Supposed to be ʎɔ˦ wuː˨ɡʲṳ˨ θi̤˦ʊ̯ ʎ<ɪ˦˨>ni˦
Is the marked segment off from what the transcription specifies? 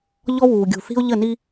yes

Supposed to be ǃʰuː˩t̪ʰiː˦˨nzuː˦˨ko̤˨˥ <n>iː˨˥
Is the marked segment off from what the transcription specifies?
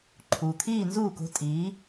yes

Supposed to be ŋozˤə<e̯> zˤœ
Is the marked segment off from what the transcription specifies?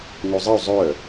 yes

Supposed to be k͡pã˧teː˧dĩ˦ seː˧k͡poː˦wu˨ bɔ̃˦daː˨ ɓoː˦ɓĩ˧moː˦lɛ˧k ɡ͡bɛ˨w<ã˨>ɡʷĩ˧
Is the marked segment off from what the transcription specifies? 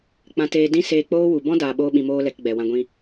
yes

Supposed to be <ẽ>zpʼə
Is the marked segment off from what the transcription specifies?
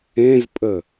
no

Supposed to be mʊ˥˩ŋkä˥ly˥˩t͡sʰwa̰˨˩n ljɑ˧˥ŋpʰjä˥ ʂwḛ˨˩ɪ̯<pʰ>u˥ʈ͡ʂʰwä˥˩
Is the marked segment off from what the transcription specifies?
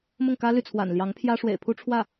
no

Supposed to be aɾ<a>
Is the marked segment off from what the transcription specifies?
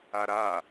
no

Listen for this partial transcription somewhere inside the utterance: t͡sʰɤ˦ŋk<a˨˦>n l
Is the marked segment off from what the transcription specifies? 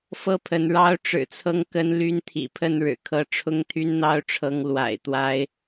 yes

